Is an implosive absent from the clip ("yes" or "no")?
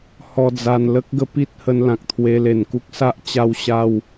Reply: yes